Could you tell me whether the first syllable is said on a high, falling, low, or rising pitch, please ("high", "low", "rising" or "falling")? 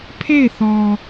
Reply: falling